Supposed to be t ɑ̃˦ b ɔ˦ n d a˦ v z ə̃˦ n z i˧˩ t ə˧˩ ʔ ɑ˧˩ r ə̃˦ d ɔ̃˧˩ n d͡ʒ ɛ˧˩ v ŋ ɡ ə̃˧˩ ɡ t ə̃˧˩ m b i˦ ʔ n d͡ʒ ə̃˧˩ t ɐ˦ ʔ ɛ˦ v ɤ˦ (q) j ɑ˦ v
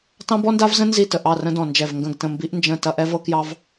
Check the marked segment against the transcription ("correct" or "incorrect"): incorrect